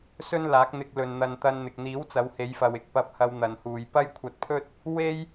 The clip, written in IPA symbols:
s ɵ˥ n l aː˨˥ k̚ n̪ ɪ˧ k̚ l ɵ˨ n n̪ ɐ˧ n t̪ ɐ˧ n n̪ ɪ˨ k̚ n̪ iː˨˥ w t͡s ɐ˨˧ w h e˨˧ j f ɐ˨ w ɪ˧ k̚ p ɐ˧ p̚ h ɐ˧ w n̪ ɐ˨ n h uː˨ j p ɐ˥ j kʷʰ ɐ˧ t̚ pʰ ɵ˥ t̚ | w e˥ j

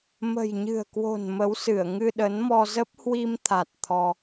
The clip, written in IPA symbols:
m ə̤˨˩ j ɲ ɨ̤˨˩ ə̯ k w o̤˨˩ n m ə˨˦ w s ɨ˧˩ ə̯ ŋ ɨ˧ ɗ ə˨˦ n m ɔ˧ z ə˦˥ p̚ h w i˧ m t̪ʰ a˨˩ t̚ t̪ʰ ɔ˧

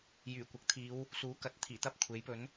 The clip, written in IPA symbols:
j yː˨˩ kʷ ɐ˨ k̚ t̪ʰ iː˨˧ w | s uː˨˥ k ɐ˨ t̚ t̪ʰ iː˨˩ t̪ ɐ˥ p̚ kʷʰ e˨˥ j p ɵ˨˥ n

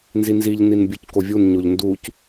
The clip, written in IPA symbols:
n z i n z i ʎ n i n bʲ u c k o vʲ u n ɲ o ʎ n d u c

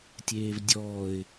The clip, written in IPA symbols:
tʲ eː v dʲ ɔː ɪ̯

